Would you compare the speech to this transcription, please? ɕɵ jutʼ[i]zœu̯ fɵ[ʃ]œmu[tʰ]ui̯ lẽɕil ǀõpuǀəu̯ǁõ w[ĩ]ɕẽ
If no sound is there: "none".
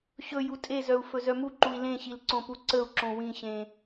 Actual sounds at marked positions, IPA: e, z, ǃ, ĩ

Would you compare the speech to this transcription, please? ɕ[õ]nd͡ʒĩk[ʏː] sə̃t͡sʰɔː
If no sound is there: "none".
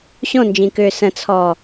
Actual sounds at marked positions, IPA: õ, ʏː

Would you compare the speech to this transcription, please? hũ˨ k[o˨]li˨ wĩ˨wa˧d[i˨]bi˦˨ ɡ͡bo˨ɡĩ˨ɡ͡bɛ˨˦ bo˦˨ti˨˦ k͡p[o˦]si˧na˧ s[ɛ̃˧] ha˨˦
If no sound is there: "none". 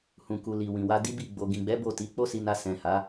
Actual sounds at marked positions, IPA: u˨, i˦, o˦, ɛ̃˨

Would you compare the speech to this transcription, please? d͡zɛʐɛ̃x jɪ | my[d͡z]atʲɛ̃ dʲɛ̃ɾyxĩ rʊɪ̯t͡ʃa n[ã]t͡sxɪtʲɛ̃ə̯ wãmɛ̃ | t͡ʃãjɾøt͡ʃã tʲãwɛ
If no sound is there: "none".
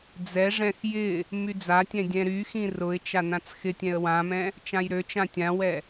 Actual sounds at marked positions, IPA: d͡z, ã

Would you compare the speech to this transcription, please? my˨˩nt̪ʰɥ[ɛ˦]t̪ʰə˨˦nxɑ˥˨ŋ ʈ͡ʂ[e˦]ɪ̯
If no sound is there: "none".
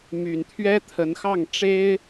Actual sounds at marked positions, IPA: ɛ˦, e˦

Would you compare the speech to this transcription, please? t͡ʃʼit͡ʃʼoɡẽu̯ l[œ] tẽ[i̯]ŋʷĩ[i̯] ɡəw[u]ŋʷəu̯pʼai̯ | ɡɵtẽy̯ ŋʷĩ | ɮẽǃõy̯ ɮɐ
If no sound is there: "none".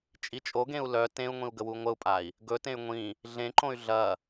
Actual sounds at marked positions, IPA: œ, u̯, u̯, u

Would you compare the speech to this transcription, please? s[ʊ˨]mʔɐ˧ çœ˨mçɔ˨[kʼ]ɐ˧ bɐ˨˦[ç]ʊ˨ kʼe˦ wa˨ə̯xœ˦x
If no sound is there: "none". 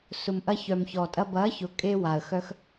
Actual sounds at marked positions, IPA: ʊ˨, tʼ, ç

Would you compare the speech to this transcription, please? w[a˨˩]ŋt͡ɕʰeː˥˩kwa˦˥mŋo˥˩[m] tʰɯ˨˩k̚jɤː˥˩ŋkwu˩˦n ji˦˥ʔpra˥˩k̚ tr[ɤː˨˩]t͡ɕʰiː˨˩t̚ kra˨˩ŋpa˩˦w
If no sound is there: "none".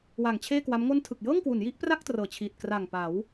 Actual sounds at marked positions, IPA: a˨˩, n, ɤː˨˩

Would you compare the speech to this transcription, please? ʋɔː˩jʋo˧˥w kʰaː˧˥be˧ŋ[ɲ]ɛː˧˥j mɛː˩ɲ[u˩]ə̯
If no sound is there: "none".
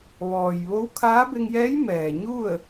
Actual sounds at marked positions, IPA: j, u˥˨

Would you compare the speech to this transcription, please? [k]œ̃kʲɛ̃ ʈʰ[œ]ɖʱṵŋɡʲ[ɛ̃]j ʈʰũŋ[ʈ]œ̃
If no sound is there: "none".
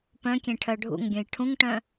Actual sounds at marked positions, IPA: p, œ, œ̃, ʈ

